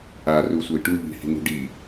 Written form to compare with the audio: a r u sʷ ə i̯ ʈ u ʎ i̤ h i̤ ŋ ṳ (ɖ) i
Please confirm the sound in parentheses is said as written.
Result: yes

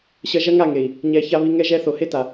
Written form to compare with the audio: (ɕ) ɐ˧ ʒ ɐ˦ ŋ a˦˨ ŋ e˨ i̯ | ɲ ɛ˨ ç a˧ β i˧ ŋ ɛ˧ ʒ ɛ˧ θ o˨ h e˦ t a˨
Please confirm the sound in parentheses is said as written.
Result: yes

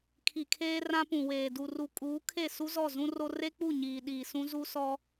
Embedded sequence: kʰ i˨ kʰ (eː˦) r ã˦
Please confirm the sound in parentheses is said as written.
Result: yes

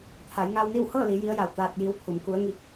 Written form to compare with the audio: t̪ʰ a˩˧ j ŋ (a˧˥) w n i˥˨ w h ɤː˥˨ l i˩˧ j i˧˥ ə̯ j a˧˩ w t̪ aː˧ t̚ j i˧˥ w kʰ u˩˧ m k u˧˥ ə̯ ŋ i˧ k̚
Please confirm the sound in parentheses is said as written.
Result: no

